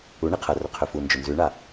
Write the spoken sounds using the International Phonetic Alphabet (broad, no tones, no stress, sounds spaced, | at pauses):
u ɳ i qʰ ɐ r ɵ qʰ ɵ f u n d͡ʒ ɵ n z ʉ ɳ a